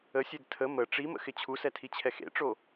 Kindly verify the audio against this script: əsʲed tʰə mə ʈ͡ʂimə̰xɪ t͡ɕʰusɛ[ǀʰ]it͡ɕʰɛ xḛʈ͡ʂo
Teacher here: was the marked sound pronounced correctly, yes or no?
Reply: no